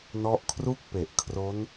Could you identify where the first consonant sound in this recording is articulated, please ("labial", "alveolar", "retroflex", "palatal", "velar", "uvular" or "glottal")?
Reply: alveolar